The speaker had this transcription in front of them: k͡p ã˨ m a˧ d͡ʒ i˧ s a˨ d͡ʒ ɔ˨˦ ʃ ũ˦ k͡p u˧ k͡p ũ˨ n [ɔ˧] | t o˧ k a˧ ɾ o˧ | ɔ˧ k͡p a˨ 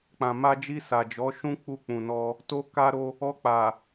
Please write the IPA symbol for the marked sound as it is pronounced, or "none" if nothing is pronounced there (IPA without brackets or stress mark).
ɔ˧